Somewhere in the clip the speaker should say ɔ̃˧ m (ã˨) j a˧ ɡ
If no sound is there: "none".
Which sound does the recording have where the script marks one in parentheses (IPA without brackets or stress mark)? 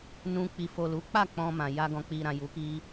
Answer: ã˨